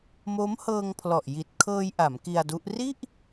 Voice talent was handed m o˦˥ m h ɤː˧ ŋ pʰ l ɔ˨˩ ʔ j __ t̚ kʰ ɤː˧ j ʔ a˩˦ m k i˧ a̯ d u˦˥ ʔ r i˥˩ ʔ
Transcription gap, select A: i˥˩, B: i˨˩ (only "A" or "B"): B